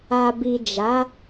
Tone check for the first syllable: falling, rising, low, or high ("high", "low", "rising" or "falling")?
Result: low